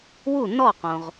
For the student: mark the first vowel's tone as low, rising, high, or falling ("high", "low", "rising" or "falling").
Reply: falling